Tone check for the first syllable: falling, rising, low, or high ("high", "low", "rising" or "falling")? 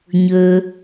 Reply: low